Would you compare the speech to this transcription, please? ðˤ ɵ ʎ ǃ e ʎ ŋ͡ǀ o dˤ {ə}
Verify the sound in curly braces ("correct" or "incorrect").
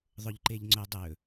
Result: incorrect